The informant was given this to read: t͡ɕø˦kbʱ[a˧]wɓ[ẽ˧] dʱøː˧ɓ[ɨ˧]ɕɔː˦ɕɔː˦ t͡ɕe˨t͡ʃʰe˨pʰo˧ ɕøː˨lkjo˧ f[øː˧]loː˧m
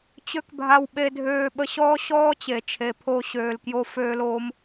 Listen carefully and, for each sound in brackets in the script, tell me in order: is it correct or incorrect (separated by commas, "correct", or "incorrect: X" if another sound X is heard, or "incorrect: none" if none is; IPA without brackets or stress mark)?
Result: correct, incorrect: e˧, incorrect: ə˧, correct